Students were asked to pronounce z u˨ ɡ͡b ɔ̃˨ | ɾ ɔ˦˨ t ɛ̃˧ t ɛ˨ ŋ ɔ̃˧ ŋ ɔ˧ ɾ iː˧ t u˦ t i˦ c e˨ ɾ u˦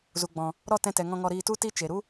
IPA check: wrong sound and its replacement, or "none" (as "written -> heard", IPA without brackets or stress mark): c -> t͡ʃ